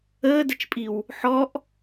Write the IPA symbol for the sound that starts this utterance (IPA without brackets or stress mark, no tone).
əː